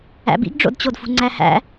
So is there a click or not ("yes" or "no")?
yes